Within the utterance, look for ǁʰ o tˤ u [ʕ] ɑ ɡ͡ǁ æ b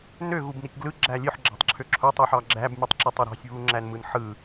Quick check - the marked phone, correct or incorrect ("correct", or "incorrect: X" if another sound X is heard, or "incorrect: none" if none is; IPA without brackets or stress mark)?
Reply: incorrect: ħ